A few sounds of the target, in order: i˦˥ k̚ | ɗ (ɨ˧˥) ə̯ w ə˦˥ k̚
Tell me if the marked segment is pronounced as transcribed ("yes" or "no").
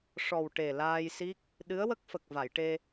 yes